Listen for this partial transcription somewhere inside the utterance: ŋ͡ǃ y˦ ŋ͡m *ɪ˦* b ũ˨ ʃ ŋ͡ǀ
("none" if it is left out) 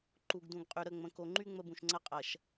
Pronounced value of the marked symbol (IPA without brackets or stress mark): ə˦